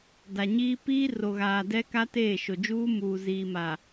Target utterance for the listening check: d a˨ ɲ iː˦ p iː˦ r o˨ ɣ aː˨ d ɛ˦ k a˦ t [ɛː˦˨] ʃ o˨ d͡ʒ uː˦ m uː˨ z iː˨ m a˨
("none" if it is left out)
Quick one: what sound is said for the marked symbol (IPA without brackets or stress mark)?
eː˦˨